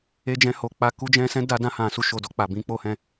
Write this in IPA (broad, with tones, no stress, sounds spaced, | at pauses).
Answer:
e˧ d͡ʒ ɛ̃˧ h o˨ k͡p a˧ k u˧ d͡ʒ ɛ̃˧ s ɛ̃˦ d a˧ d ã˧ h ã˨ s u˧ ʃ o˨ d ɔ˧ k͡p a˨ b ĩ˨˦ k͡p o˧ h ɛ̃˧